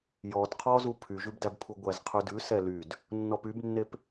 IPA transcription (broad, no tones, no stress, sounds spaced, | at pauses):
j ɔ d qʰ ɔ z u pʰ y ʒ ʉ b d æ b pʰ u ɡʷ æ z qʰ ʉ d ʉ s ɛ l y d | nː ɔ p y b nː e p